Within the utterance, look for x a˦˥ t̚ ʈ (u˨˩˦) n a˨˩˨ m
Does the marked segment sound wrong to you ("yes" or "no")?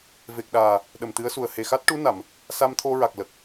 yes